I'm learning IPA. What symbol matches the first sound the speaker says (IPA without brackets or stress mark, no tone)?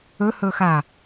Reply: ɵ